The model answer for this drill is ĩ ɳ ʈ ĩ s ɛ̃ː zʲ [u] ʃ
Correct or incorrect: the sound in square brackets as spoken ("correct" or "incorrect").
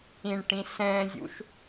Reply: incorrect